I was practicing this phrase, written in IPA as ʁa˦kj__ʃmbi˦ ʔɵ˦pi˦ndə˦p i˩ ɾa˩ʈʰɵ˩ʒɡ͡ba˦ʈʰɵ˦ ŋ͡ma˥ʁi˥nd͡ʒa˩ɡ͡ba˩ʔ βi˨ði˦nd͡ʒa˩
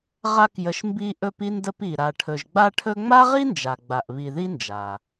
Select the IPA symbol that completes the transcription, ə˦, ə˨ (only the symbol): ə˨